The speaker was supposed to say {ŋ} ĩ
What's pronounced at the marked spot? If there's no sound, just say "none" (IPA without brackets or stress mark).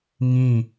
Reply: ŋ